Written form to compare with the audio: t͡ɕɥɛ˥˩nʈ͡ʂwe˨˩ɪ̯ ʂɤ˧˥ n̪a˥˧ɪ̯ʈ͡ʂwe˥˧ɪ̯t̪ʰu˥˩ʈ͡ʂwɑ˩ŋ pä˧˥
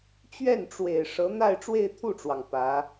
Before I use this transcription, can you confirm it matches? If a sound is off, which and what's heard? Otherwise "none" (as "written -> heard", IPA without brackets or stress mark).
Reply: none